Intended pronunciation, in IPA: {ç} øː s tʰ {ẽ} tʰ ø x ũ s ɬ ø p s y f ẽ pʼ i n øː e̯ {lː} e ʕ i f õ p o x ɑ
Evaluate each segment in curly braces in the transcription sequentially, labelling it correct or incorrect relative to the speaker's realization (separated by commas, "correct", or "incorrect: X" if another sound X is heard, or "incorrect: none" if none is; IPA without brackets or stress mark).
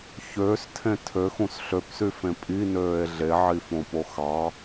correct, correct, incorrect: ɮ